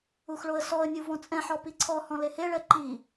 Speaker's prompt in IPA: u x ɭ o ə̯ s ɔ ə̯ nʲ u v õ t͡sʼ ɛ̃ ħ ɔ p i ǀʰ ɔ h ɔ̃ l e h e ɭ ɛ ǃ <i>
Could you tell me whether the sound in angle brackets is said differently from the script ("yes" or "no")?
no